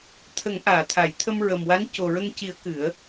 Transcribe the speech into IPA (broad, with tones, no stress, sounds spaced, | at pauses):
t̪ʰ ə˨˩˦ ŋ ʔ aː˨˩˨ t̪ʰ a˨˩˨ j t̪ʰ ə˧ m ɹ ə˨˩ m w a˧˥ n c o˨˩ ɹ ə˧ ŋ c i˨˩˦ ə̯ k ɨ˨˩˦ ə̯